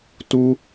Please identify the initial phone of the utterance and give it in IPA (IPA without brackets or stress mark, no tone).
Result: t